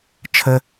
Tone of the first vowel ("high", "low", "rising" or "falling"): high